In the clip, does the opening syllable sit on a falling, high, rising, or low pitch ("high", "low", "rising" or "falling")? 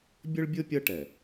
high